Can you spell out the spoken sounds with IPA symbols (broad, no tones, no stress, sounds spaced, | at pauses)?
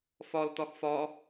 f ɒ l t ɒ x f ɒ